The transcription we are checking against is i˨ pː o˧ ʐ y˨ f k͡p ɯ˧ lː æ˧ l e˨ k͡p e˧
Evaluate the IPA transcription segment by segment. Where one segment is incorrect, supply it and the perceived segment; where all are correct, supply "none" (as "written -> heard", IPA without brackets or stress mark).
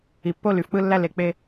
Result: ʐ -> l